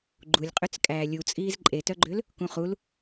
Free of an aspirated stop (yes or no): yes